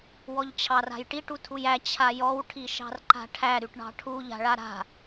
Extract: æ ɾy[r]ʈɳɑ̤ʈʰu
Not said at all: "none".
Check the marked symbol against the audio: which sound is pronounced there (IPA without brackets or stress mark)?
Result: none